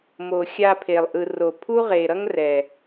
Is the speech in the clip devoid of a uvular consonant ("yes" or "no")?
no